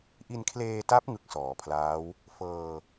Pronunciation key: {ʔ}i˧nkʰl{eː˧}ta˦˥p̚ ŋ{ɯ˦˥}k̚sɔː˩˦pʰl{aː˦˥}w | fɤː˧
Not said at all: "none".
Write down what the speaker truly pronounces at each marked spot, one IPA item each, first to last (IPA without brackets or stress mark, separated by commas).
ʔ, eː˧, ɯ˦˥, aː˦˥